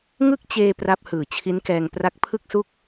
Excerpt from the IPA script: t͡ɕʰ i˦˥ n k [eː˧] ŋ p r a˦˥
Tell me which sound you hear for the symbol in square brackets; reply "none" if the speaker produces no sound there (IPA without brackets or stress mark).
ɛː˧